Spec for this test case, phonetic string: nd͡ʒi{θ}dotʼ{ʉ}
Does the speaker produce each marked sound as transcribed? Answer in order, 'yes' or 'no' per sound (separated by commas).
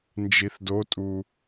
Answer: yes, no